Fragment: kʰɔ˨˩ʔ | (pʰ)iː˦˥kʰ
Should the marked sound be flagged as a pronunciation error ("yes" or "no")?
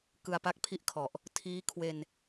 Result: yes